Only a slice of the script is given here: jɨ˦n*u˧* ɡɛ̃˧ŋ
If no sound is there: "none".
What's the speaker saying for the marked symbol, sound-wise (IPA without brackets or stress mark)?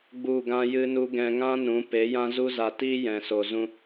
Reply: u˦